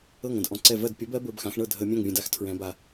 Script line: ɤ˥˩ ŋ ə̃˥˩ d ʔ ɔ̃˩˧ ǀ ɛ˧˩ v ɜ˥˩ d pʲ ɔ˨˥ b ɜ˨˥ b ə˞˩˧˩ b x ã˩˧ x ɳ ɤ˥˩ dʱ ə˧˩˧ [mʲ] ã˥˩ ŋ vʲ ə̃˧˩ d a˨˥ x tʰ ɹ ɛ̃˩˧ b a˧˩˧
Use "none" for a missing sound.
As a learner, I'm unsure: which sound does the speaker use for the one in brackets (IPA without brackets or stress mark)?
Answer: mʲ